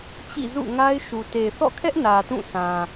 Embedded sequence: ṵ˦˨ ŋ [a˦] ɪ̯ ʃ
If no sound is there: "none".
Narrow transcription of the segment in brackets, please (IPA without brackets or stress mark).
a˦